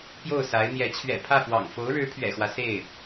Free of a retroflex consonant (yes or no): no